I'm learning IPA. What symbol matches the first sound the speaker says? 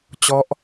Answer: t͡ɕ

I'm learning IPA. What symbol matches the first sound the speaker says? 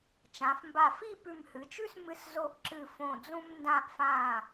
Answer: t͡ʃ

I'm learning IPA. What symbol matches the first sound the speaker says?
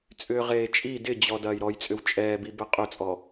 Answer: t͡sʼ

